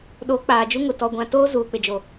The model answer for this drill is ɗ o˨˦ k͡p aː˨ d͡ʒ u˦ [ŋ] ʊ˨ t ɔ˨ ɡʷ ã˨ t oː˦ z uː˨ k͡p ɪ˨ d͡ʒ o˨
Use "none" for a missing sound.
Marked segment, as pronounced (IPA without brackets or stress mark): ŋ